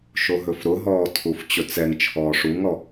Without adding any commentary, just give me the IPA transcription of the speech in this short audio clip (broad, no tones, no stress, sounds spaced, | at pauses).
ʃ o ɦ ɵ f ɾ ʊ ɦ ɔː tʰ u f t͡ɕ ɵ t͡s ɛ ŋ t͡ʃʰ ɔː ʂ u ŋ ɔ